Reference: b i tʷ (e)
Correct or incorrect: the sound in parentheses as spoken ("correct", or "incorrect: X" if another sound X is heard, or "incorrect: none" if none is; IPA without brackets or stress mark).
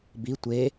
correct